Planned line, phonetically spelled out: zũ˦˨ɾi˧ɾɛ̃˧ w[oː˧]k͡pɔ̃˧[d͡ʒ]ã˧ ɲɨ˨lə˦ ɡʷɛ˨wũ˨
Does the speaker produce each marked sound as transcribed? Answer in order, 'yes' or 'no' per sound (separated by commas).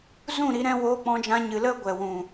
yes, yes